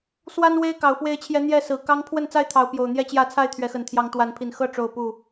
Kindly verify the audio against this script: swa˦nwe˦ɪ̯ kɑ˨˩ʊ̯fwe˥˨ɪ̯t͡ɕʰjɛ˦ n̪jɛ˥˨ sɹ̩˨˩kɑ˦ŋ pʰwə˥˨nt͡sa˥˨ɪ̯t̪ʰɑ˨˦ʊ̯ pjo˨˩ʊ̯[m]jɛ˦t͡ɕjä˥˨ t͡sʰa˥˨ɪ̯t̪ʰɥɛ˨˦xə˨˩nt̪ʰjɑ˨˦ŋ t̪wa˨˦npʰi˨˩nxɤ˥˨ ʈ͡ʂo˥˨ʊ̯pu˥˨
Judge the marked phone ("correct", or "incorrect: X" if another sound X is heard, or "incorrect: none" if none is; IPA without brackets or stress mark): incorrect: n̪